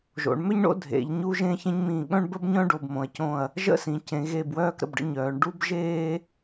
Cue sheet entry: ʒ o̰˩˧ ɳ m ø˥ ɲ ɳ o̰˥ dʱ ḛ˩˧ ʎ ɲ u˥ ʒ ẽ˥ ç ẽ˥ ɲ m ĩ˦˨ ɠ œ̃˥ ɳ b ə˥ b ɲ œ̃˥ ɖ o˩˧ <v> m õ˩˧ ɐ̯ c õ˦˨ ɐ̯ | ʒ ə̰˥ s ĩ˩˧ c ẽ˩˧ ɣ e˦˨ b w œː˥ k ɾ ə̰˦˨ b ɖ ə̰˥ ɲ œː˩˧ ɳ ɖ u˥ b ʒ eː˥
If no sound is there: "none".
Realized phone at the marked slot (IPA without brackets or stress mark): b